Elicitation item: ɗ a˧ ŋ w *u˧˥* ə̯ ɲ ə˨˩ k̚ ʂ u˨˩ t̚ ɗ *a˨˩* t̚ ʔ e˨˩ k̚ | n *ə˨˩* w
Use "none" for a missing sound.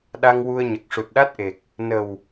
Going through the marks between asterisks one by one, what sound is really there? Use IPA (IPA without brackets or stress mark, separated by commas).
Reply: u˧, a˦˥, ə˨˩